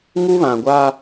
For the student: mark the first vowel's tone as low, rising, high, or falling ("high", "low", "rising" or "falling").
high